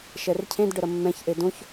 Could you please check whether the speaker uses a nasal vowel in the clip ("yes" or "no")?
yes